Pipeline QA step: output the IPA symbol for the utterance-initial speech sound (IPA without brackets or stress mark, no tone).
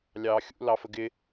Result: lʲ